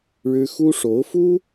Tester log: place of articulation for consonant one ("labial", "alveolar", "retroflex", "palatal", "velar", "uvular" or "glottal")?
retroflex